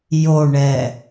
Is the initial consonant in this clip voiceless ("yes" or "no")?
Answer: no